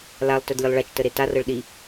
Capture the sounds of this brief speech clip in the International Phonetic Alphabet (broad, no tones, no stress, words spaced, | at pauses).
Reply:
lalˠ tœdlʲəlˠɭat͡ʃtə ɾetarɤɭ ɗi